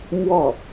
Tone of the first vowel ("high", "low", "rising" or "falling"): falling